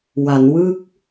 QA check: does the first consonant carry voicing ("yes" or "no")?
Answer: yes